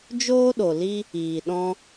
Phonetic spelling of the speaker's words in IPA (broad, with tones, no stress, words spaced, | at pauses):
d͡ʒoː˦ɗo˨li˦ | iː˨ ɗɔ̃˦